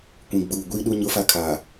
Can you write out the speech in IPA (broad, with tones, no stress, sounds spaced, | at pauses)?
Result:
kʷ ĩ˨ ɡ͡b uː˨ ɡʷ iː˦ ɗ u˦ ɲ ʊ˦ f a˦ kʰ aː˨